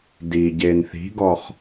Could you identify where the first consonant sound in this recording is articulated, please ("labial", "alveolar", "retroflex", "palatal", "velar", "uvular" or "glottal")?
alveolar